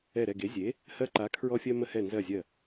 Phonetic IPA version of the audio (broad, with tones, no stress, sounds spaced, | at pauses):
ɛ˧˩ ɾ ɛ˧˩ ɡ e˩˥ zʲ e˩˥ | h ɜ˧ ǃ a˩˥ kʰ ɹ ɔ˧ fʲ ɜ˧ m ə˧ h ɛ˧˩ n z ɜ˧˩ zʲ ɜ˧˩